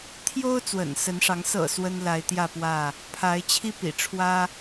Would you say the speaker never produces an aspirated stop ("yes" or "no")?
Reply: no